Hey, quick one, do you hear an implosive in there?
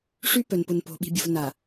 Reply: yes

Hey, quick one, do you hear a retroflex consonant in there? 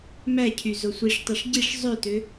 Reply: yes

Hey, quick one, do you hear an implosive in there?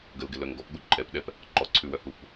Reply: yes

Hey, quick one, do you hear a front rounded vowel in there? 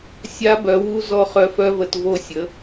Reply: yes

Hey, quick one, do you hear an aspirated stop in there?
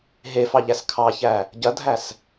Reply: yes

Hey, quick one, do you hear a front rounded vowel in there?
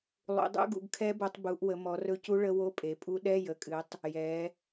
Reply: no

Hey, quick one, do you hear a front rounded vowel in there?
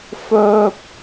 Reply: yes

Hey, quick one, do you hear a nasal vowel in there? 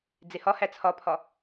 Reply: no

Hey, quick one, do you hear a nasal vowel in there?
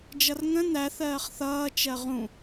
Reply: yes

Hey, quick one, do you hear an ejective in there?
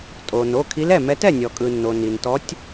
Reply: yes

